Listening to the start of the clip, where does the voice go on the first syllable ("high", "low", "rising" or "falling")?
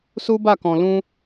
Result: high